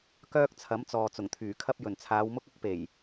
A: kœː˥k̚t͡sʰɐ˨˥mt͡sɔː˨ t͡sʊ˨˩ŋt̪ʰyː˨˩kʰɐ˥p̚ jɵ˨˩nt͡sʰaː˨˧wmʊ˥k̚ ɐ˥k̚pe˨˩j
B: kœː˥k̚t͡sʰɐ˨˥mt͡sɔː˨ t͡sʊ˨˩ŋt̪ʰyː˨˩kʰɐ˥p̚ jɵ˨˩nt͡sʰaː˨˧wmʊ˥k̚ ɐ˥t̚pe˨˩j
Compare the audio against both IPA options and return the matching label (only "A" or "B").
A